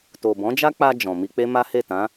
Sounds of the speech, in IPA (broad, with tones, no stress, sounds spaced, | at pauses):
t o˨ b ɔ̃˨˦ d͡ʒ a˦ k͡p a˧ d͡ʒ ɔ̃˨ m i˧ k͡p e˦ m a˦ h e˦˨ t ã˨˦